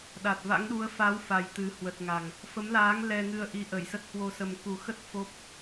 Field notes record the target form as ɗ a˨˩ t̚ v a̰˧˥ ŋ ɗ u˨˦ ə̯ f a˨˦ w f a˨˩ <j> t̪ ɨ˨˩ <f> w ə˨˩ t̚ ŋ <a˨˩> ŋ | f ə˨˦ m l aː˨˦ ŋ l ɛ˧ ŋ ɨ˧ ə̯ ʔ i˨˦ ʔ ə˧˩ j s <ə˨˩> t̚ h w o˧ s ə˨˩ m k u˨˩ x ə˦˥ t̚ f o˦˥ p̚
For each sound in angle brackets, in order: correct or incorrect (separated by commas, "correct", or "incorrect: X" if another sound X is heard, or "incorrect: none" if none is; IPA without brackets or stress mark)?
correct, incorrect: h, correct, incorrect: ə˦˥